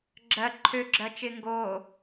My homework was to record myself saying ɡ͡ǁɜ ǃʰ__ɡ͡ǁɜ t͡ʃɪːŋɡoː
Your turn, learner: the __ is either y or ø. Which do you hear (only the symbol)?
ø